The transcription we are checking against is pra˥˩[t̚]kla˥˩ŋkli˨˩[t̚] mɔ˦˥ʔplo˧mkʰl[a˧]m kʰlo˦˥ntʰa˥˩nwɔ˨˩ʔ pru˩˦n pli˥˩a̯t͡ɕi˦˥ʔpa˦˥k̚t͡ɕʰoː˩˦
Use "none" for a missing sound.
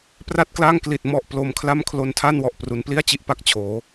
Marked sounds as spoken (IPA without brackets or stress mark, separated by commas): t̚, t̚, a˥˩